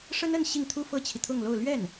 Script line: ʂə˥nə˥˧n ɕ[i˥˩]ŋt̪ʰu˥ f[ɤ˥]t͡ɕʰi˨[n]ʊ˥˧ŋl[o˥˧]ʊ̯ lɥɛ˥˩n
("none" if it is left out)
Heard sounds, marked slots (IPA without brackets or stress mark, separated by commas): i˥˩, ɤ˥, t̪ʰ, o˥˧